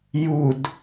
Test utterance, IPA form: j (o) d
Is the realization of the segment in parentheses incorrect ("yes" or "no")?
yes